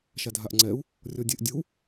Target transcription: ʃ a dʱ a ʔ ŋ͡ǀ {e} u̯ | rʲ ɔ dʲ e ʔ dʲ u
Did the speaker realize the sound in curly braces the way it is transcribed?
no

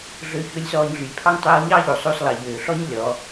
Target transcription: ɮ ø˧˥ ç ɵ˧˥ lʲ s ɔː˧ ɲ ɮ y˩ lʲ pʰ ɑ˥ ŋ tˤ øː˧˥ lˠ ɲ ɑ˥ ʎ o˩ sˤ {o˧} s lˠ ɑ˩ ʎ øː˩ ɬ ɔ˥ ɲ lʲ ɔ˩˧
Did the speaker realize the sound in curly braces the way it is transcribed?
yes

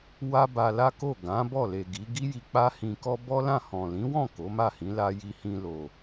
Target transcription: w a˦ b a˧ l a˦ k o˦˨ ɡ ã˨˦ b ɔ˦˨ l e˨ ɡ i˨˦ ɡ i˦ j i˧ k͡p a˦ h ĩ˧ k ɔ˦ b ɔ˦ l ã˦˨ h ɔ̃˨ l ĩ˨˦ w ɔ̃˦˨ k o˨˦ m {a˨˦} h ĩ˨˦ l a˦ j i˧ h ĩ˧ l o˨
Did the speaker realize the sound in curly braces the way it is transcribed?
no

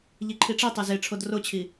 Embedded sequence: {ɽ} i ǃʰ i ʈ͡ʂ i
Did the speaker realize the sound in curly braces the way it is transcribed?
no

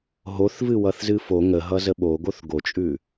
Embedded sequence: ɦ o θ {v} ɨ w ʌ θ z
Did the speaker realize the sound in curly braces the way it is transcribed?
yes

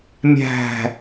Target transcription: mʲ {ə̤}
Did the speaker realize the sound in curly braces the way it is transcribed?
no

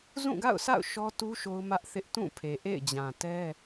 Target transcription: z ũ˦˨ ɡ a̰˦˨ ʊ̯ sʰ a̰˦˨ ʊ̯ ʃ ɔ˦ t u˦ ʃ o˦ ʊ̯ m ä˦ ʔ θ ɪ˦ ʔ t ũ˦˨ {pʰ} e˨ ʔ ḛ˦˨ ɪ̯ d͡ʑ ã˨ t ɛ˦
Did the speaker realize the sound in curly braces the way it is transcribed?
yes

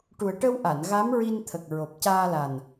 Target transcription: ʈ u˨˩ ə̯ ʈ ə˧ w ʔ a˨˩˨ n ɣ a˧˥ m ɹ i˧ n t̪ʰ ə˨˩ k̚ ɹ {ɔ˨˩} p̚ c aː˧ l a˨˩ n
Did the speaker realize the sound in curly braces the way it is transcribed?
no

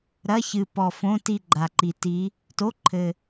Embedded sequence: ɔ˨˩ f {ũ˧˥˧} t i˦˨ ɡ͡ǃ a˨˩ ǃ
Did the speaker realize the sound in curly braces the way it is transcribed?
no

